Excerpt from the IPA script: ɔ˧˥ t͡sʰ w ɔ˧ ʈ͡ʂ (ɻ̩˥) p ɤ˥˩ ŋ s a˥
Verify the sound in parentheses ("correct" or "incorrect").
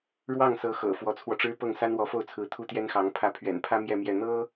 correct